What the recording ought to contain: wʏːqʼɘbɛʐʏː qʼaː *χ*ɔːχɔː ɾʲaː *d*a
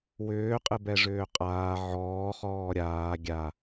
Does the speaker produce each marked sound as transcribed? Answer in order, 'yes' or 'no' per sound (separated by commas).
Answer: no, no